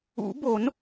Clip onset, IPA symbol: ṵ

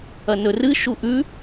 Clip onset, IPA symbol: ɐ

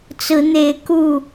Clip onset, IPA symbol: t͡s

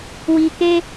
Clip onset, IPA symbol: w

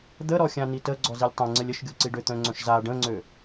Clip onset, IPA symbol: d̪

